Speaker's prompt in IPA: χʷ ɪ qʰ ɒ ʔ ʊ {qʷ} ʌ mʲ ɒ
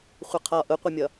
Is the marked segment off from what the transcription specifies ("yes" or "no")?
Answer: no